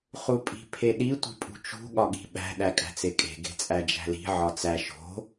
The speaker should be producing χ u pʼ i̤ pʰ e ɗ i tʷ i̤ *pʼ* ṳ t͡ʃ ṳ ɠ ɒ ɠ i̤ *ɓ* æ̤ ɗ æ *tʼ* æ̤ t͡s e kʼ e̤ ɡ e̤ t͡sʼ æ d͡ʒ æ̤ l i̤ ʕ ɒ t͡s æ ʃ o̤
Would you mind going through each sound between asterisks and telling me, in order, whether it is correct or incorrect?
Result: correct, correct, incorrect: kʼ

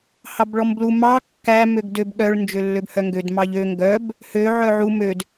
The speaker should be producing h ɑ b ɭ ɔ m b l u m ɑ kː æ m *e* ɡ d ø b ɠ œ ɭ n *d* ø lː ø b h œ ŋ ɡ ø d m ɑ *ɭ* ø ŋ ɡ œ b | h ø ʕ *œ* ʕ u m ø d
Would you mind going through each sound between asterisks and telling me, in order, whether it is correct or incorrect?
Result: incorrect: ø, incorrect: d͡ʒ, incorrect: ʎ, correct

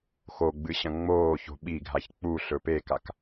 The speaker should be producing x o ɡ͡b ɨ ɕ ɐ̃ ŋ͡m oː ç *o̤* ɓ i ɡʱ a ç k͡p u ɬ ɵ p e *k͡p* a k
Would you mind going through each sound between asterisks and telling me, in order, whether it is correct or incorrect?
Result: correct, incorrect: k

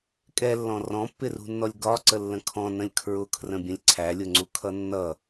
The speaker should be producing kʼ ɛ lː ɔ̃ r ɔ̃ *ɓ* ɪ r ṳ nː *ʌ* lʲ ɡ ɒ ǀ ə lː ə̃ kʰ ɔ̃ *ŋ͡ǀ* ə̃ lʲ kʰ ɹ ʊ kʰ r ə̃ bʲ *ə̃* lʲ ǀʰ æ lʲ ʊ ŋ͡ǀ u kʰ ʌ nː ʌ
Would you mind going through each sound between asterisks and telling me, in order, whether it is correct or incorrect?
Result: incorrect: pː, incorrect: ɔ, incorrect: n, correct

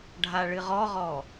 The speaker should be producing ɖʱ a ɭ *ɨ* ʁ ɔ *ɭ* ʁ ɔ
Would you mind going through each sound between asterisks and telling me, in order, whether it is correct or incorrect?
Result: correct, incorrect: none

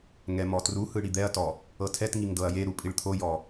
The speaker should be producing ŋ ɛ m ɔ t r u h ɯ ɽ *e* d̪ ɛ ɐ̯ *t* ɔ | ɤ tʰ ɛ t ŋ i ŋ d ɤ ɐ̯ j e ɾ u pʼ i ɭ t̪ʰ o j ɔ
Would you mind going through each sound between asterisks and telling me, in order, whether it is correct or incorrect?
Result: incorrect: i, correct

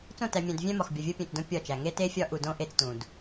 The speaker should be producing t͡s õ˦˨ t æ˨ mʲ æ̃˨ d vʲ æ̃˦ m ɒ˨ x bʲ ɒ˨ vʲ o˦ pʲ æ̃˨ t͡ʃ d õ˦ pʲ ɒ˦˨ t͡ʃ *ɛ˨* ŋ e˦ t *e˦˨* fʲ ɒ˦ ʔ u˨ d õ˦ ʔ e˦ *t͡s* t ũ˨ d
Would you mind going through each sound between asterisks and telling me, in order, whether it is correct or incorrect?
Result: incorrect: æ˨, incorrect: e˦, correct

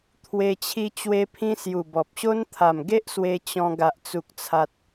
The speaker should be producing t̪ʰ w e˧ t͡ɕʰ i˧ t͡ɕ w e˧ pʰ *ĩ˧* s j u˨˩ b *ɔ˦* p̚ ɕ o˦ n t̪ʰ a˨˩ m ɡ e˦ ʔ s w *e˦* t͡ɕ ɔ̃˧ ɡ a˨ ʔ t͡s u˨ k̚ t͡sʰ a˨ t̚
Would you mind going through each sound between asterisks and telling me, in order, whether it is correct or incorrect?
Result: correct, incorrect: ɔ˨, incorrect: e˧

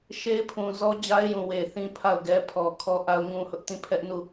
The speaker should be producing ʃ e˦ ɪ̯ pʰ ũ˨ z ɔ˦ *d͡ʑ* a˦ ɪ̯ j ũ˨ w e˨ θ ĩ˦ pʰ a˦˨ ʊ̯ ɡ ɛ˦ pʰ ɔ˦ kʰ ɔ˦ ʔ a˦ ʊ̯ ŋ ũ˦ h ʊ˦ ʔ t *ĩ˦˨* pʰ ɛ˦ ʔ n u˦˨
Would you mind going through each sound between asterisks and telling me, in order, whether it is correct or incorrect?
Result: correct, correct

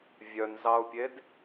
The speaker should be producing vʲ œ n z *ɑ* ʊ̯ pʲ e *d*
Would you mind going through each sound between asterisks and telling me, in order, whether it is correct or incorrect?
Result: correct, correct

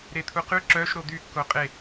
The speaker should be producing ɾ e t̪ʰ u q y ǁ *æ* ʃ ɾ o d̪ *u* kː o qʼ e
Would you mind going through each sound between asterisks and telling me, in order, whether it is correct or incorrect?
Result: incorrect: œ, incorrect: y

